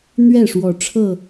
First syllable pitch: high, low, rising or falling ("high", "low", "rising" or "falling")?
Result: falling